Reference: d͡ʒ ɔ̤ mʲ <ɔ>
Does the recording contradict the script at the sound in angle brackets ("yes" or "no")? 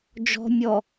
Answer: no